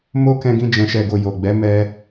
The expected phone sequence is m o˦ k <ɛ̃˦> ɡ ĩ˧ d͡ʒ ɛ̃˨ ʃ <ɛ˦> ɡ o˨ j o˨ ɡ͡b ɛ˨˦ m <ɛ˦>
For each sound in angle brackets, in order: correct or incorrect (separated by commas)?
incorrect, incorrect, correct